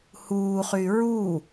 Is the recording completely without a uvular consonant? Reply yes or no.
no